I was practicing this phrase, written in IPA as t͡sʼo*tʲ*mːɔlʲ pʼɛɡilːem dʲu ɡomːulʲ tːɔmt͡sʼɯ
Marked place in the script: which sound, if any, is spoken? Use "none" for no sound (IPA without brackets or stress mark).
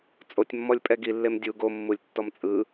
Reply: tʲ